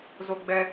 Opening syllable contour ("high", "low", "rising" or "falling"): high